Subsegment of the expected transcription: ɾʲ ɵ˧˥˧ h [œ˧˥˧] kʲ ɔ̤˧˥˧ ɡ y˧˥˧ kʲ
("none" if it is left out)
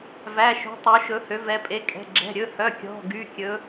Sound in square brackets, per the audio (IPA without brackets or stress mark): œ˧˥˧